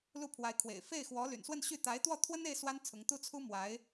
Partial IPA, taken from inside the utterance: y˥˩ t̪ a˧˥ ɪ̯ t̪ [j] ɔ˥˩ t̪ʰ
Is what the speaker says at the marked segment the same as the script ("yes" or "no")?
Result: no